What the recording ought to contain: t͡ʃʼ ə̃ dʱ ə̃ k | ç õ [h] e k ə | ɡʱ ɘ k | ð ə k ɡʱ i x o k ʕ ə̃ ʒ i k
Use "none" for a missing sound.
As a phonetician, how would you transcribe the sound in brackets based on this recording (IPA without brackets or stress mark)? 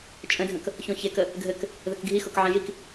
ç